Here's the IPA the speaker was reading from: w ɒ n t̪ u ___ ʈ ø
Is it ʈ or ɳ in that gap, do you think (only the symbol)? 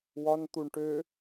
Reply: ɳ